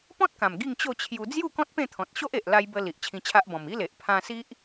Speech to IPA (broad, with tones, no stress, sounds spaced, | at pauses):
p ɔ̃˦ t̚ k ã˨˩ m ɡ i˥˧ ŋ t͡ɕ o˥˧ t͡ɕʰ j u˧ d͡z j u˥˧ k ɔ̃˦ t̚ p ẽ˥˧ t̪ʰ ɔ̃˨ t̚ ɕ o˦ ʔ e˨ ʔ l a˧ j b ə˧ l i˨ ʔ t͡ɕʰ ĩ˧ t͡ɕʰ a˦ ʔ b ɔ̃˨˩ m i˦ l e˨ ʔ pʰ ã˧ s i˦ ʔ